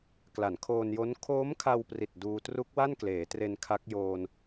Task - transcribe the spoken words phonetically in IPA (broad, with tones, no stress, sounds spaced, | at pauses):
k l a˩˦ n kʰ oː˧ n j o˦˥ n kʰ oː˦˥ m kʰ a˧ w p r i˨˩ t̚ d uː˧ t r u˦˥ k̚ w a˥˩ n k l eː˩˦ t r e˧ n kʰ a˦˥ k̚ j oː˧ n